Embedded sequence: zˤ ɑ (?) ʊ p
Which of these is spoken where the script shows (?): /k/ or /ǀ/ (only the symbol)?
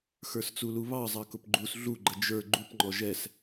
k